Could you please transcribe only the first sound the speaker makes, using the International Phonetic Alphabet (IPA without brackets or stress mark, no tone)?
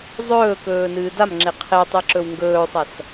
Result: zˤ